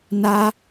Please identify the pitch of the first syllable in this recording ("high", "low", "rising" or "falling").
high